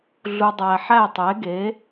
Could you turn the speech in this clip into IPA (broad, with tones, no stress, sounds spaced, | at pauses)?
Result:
ɮ u˨ dˤ æ˨ ħ æ˦˨ tˤ e˨˦ ɡ e˨˦